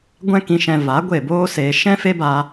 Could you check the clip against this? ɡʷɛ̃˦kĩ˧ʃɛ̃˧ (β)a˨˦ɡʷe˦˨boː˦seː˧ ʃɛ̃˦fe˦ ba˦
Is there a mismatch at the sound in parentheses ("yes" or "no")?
yes